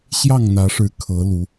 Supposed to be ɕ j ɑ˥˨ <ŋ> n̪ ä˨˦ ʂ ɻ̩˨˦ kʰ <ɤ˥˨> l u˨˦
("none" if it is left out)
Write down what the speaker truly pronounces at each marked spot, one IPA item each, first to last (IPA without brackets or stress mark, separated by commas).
ŋ, ɤ˨˦